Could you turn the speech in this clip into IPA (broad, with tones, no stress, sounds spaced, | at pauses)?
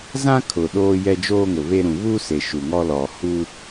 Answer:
z ã˦ kʰ ʊ˨ ɗ oː˦ j ɛ˦ d͡ʒ oː˦ ŋ ʊ˨ β e˦ ɾ ũ˨ β uː˦ s e˨ ʃ u˨ ŋ ɔ˦ l ɔ˨ h uː˦